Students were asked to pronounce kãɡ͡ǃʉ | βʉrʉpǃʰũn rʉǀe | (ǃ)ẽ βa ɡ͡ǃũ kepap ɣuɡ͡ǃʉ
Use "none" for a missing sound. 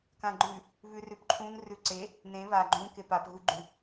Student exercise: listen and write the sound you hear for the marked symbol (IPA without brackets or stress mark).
n